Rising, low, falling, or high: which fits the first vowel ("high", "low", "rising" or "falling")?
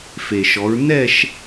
low